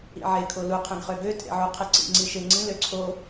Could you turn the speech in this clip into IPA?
ḭ ʕ e kʰ o l u qʰ ɛ̃ ɡ χ ø ɡ ø tʼ ḛ ʕ u qʰ e ǀ ḭ ŋ͡ǀ i ʃ e ŋ͡ǀ ĩ l ø ǀʰ o

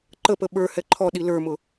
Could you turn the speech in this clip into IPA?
ǃ ə p ə ɓ ə˞ h ɛ ǃʰ ɔ ɗ i l ə˞ m ʊ

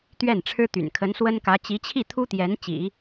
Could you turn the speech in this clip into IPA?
t̪ ɥ ɛ˥˩ n ʈ͡ʂʰ ɻ̩˥ t̪ y̰˨˩ n kʰ ə˧˥ n s w ə˥ n k ä˧˥ t͡ɕ i˧˥ t͡ɕʰ i˥˩ t̪ʰ u˥ t̪ j ɛ˧˥ n t͡ɕ ḭ˨˩˦

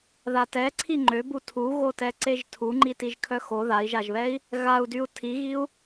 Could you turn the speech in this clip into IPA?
ð a t ɛ ǀʰ i ŋ͡ǃ ø b u tʰ u ɣ o t ɛ ǀ e ʒ tʰ u ŋ͡ǃ i t i ʒ kʰ œ x o ð a i̯ ʒ a ʒ β ɛ i̯ | ɣ a u̯ d y u̯ tʰ i ɣ i u̯

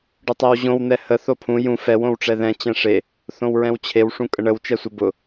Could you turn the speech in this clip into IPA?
ɖ ʊ tˤ ɛ w ʑ õ w n̪ ɛ h ə θ o pʰ ũ j ũ f ɛ w õ w ʈ͡ʂ ɛ ð ɛ̃ t͡ɕ ɛ̃ ʂ e | θ õ w ɹ ɛ̃ w t͡ɕʰ e w ʂ ũ kʼ ə ɳ ə w t͡ʃ ɛ sʷ ə b ʊ

